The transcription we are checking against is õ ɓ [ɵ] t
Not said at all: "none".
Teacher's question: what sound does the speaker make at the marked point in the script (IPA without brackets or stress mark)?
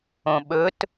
ɵ